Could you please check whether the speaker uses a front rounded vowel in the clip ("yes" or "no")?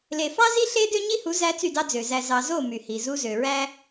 yes